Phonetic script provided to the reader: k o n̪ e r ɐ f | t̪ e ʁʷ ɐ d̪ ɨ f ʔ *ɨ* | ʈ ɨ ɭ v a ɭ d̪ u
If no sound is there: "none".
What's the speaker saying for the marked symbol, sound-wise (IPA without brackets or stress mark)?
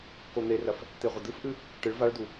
ɨ